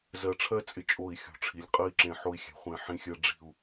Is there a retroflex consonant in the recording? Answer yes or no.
yes